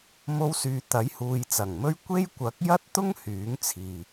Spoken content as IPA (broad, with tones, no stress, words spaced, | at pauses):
mo˧wsyː˨ t̪ɐ˨˥jhuː˨jt͡sɐ˨˩ŋmɵ˥ɥ kʷe˥jkʷɐ˨˥k̚ jɐ˥t̚t̪ʊ˥ŋ hyː˨˥ŋt͡sʰiː˨